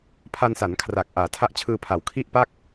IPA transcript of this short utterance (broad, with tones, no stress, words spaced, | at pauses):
pʰa˧nsa˩˦n kʰra˨˩k̚ ʔaː˩˦ tʰa˦˥ʔt͡ɕʰɯː˧pʰa˩˦w kʰi˥˩ʔ pa˥˩k̚